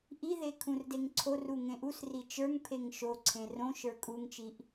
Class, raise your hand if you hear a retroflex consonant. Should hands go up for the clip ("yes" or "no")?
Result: no